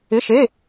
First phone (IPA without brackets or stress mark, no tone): ɪ